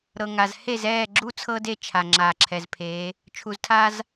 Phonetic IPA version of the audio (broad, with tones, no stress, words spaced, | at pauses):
ɾɤ˨ŋa˨z he˦˨zɛː˦˨ɡ͡ǁu˦ t͡sʰɤ˦de˦˨t͡ʃʰa˨ ŋ͡ǁaː˨ǁʰɛ˨zpʰeː˨˦ | t͡ʃʰu˨ztʰa˦z